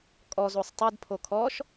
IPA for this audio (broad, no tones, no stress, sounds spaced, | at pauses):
kʼ ɔ z o sˤ tˤ ɯ d pʰ o kʰ ɔ ʃ